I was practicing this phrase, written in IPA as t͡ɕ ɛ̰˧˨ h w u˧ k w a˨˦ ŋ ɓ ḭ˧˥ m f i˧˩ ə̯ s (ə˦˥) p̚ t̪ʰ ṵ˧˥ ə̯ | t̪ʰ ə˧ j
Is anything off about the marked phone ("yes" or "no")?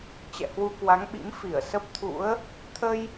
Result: no